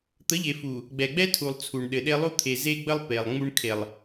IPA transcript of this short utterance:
t̪ ə˨˦ ʎ e˨ f u˨ | ɡ͡b ɛ˨ ɡ͡b ɛ˦ tʰ u˨ lˠ t͡sʰ u˨ ɳ ɗ ɘ˨ ɗ e˦ lˠ u˦ t̪ʰ e˨ z e˦ ɡ͡b ə˦ lˠ p e˨ lˠ ŋ͡m u˦ ɳ kʰ e˨ lˠ

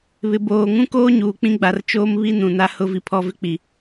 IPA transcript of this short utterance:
β ɪ˨ b oː˨ ŋ ũ˦ k oː˦ ɲ uː˨ k͡p ĩ˦ ɡ͡b a˨ r t͡ʃ oː˦ m β i˦ n ũ˨ n a˦ h ʊ˦ v i˦ pʰ ɔ˦ v ɪ˦ k͡p i˨

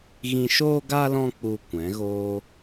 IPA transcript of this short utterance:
ɣ ĩ˧ ʃ oː˧ ɡ a˧ l ɔ̃˧ k͡p u˨ kʷ ɛ̃˨˦ ɣ oː˦

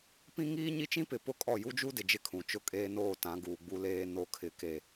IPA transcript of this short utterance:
p ĩ˦ ŋ iː˦ ɲ i˦ t͡ʃ ĩ˦ p ɪ˨ p ʊ˦ kʼ ɔ˦˨ j u˦ d͡ʒ u˦ d ɪ˨ d͡ʒ ɪ˦ kʰ ũ˨ t͡ʃ ʊ˦ kʼ eː˦ n oː˦˨ t ã˨˦ ɡ uː˨ ɡ͡b u˦ l eː˦ n o˨ kʰ ɪ˨ k e˨

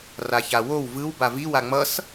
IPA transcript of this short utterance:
r a ç a w o w v ɯ w b a v i w a ŋ͡m ʌ s

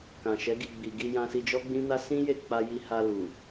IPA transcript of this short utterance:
k ã˨ ʃ ɛ˨˦ ɡ i˦˨ ɡ͡b i˨ ɡ i˧ j ã˧ s i˧ d͡ʒ ɔ˦ ɡ͡b ĩ˦ n a˦ s ĩ˦ j e˦˨ k͡p a˧ j i˧ h a˧ l u˨

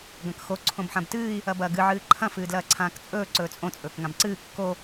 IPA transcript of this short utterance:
ɡ ɐ̃ k x o ǀʰ õ b ħ ã b t ɨː i̯ | ɐ b ɐː ɡ ɨ ʕ ɨː ǃʰ ɐ̃ f ɨː d l ɐː ǀʰ ãː k t͡sʼ ɵː ǀ ɵː t͡sʼ õ t͡sʼ ɵː k ŋ ã b ǀ ɨː kː o

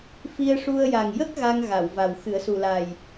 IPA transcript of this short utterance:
f i˧ ə̯ ʂ u˧ ə̯ j a˨˩ ŋ j ə˦˥ k̚ ɣ a˧ ŋ ɣ a˨˩˨ w v a˨˩ w x ɨ˨˩˦ ə̯ s u˨˩ l a˨˩ j

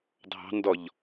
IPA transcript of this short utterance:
dʱ ɑ̤ n d ɔ ʎ

